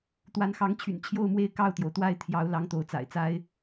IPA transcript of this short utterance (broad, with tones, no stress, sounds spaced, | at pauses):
t̪ w a˨˦ n x ɑ˨˦ ŋ t͡ɕʰ y̰˨˩ n t͡ɕʰ j o˥˨ ʊ̯ m w e˥˨ ɪ̯ k ɑ˥˨ ʊ̯ t̪ j o˩ ʊ̯ t̪ w a˥˨ ɪ̯ t̪ʰ j ɑ˨˦ ʊ̯ l ɑ˨˦ ŋ t̪ o˨˦ ʊ̯ t͡s a̰˨˩ ɪ̯ t͡s a˦ ɪ̯